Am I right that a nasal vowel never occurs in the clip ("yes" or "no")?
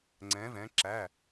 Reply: no